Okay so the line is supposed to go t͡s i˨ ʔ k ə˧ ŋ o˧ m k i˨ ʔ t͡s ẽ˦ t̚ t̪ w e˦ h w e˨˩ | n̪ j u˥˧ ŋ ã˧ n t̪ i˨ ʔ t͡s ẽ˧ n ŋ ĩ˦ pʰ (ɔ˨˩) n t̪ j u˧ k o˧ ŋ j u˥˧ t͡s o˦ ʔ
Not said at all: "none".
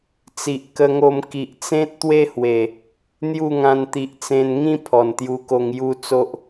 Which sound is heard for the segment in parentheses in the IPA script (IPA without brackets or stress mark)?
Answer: ɔ˨˩